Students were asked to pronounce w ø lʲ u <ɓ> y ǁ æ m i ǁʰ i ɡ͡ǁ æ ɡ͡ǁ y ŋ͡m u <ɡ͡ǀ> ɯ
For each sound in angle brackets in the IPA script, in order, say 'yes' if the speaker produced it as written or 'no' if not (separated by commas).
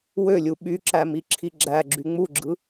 yes, no